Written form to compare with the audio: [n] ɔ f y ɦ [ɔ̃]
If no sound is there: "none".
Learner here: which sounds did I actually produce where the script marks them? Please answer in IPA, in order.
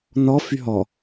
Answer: n, ɔ

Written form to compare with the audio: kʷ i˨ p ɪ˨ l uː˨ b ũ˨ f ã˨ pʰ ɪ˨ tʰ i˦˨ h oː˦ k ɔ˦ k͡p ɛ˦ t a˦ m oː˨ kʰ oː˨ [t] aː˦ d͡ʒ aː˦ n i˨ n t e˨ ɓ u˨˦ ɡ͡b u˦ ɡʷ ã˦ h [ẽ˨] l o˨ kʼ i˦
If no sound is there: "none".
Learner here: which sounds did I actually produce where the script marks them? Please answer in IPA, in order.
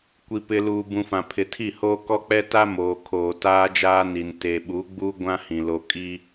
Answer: t, ĩ˨

